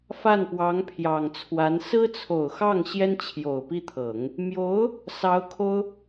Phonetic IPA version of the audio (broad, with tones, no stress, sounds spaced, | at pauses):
f a˥˩ n p w ɑ˧˥ ŋ pʰ j ɑ˨˩ ŋ t͡sʰ w a˧˥ n s ɹ̩˥ t͡sʰ o˨˩ ʊ̯ x ɑ˥˩ ŋ ɕ j ɛ˥ n t͡ɕʰ j o˨˩ ʊ̯ p i˥˩ t̪ʰ ɤ˨˩˦ ŋ | m j o˧˥ ʊ̯ | s ɑ˧˥ ʊ̯ kʰ o˥ ʊ̯